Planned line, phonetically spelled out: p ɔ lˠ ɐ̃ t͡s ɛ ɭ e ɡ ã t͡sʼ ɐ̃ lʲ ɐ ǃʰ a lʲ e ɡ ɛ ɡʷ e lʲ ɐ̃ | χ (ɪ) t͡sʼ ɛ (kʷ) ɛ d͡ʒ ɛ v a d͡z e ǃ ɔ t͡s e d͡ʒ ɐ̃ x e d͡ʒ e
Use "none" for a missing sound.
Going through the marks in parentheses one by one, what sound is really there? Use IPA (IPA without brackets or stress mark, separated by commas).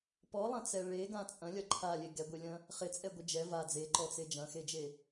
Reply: ɪ, ɡʷ